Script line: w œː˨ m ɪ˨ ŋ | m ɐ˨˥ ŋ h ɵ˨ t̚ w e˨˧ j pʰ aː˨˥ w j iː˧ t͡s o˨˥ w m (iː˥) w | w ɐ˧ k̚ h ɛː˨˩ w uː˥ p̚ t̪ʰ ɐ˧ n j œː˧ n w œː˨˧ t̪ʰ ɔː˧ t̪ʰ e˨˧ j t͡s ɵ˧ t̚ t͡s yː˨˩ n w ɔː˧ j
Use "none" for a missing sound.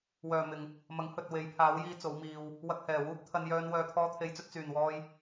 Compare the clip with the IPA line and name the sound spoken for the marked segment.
iː˧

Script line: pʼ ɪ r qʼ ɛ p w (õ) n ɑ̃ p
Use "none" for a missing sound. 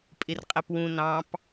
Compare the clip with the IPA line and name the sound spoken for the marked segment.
ũ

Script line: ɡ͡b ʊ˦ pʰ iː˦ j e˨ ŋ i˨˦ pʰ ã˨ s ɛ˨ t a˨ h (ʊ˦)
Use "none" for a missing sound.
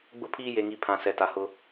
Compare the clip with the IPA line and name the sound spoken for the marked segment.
ʊ˦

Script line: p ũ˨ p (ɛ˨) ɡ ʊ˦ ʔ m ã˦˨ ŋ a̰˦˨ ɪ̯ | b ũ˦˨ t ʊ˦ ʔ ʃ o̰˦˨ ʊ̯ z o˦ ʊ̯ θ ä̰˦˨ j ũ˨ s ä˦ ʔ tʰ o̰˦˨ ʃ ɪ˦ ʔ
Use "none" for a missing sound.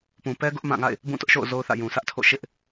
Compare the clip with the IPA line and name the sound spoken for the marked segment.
ɛ˦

